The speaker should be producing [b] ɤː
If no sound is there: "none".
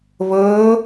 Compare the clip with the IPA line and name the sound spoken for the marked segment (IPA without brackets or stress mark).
β